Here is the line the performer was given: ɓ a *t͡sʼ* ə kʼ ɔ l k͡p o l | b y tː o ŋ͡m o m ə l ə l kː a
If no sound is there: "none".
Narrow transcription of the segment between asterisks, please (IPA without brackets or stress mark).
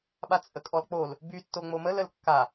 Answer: t͡sʼ